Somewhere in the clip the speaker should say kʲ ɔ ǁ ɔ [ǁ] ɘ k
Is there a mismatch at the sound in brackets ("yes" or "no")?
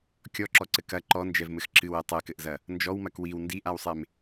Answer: yes